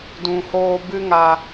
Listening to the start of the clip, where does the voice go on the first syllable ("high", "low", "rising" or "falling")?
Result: low